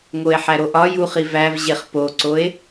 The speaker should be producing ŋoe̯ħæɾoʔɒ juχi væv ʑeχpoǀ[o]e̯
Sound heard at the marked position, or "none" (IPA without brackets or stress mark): o